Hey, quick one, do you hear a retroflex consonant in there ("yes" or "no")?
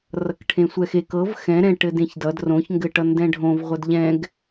yes